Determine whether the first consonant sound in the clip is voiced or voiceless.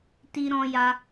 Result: voiceless